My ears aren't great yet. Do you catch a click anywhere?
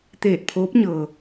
no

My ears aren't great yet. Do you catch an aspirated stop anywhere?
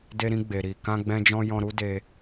no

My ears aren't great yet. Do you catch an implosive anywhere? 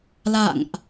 no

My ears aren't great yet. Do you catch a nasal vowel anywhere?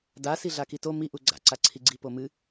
no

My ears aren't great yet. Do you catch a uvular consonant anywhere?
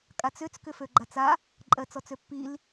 no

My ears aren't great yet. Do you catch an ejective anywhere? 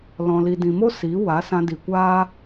no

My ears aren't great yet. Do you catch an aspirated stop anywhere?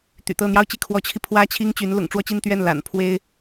yes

